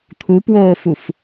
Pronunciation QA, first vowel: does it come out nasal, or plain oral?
oral